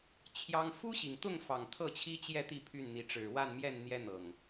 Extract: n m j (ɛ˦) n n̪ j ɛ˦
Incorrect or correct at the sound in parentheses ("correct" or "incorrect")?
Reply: incorrect